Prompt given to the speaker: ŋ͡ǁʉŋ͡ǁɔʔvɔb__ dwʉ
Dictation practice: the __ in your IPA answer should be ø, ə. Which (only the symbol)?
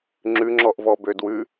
ø